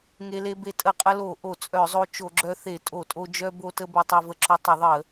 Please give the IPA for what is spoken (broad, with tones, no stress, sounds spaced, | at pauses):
ŋ e˧ l e˧ b e˧ tʼ ə˧˩˧ qʼ ə˧ l o˧˩˧ ʔ o˧˩˧ t͡sʼ œ˧˩˧ zˤ o˧ t͡ʃ o˧˩˧ ɡ͡ǁ œ˧ θ e˧˩˧ tʼ o˧˩˧ tʼ o˧ d͡ʒ œ˧ b o˧ t ə˧ b e˧ tˤ œ˧ v ə˧ ǁ o˧ tˤ ə˧˩˧ ðˤ ə˧˩˧